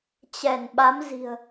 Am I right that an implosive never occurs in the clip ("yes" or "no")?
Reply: no